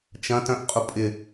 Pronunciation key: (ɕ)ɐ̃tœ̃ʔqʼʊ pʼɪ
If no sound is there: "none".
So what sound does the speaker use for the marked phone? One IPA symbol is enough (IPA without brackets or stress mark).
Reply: t͡ʃ